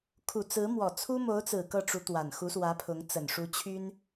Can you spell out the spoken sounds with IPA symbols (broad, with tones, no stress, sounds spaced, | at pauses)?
kʰ u˨˩ t͡s ɹ̩˧˥ m w ɔ˨˩ t͡sʰ u˥ m o˧˥ ʊ̯ t͡s ɹ̩˨˩ k ɤ˥˩ ʈ͡ʂ u˧˥ t̪ w a˨˩ n x u˧˥ s w ä˧˥ pʰ ʊ˧˥ ŋ t͡s ə˨˩ n ʂ u˧˥ t͡ɕʰ y˥ n